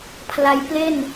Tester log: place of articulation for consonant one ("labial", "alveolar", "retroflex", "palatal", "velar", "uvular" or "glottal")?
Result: labial